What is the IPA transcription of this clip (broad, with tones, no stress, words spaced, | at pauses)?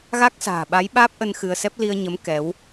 ɣa˦˥k̚sa̤ː˨˩ɓa˨˦j ɓaː˦˥p̚ʔə˧n xɨ˧ə̯sɛ˦˥p̚ li˧ə̯ɲə˨˦m kɛ˨˦w